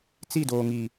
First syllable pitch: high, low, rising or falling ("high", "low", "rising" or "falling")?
falling